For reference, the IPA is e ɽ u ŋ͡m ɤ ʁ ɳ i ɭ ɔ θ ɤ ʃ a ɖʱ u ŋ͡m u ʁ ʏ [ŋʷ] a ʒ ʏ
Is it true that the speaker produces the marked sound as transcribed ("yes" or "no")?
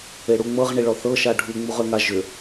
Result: no